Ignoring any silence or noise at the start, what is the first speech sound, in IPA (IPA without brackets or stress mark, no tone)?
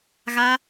ɣ